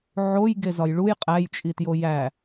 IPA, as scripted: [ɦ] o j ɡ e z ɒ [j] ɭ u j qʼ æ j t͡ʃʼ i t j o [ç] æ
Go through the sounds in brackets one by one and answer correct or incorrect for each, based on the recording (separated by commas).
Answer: incorrect, correct, incorrect